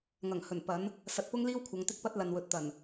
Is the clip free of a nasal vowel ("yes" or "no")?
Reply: yes